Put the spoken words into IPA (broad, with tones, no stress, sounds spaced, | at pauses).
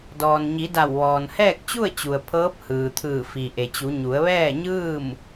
d ɔː˩ n ɲ i˩˧ d a˧˩ w ʋ ɔː˩ n h ɛː˥˨ k̚ t͡ɕ u˥˨ ə̯ t͡ɕ u˩ ə̯ pʰ ɤː˧˥ p̚ h ɯː˩ t̪ʰ ɯː˧˩ f i˩ ʔ e˩ t͡ɕ u˩˧ ɲ u˩˧ ə̯ ʋ ɛː˥˨ ɲ ɯː˥˨ m